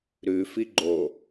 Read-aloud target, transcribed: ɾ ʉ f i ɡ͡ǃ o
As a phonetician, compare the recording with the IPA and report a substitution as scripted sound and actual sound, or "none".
none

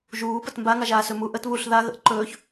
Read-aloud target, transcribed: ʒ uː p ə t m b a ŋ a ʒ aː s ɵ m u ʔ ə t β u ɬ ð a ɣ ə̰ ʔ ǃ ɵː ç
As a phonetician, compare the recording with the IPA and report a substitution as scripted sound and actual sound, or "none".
none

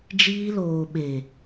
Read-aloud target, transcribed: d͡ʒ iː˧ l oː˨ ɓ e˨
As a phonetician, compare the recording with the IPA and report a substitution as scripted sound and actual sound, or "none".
none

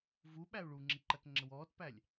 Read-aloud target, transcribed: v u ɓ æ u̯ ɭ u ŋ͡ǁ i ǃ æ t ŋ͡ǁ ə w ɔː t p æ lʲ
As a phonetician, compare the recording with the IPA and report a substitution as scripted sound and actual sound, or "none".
none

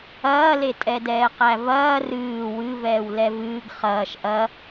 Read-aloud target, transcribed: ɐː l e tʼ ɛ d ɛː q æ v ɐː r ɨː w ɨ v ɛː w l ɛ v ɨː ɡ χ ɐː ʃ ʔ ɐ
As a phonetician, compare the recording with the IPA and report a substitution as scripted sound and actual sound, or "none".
none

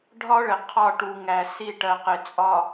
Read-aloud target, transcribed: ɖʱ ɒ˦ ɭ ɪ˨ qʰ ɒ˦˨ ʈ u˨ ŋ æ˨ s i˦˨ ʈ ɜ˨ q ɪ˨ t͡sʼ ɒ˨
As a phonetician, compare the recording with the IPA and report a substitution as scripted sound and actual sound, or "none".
none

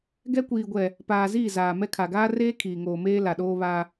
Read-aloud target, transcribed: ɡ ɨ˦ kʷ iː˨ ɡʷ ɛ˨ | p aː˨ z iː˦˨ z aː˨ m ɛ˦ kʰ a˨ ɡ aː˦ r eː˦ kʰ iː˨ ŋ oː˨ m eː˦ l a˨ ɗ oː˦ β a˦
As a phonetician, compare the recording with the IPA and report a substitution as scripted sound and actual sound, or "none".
ɨ˦ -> ɛ˦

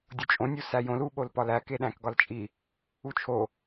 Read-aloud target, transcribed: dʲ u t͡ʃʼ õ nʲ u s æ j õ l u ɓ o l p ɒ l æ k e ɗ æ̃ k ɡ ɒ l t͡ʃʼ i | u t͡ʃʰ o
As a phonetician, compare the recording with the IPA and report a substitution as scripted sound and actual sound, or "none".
none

